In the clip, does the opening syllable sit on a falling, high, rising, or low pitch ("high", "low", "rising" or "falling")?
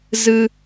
low